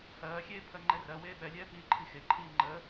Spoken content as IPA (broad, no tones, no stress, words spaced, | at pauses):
hɜːxʲeː pʰɜŋ͡ǃɛrɜweː ɓɛlʲɛː piːǃʰixeǃʰiː ŋ͡ǃə